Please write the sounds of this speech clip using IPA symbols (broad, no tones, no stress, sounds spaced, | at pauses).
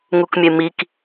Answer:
ŋ u k mʲ e m i k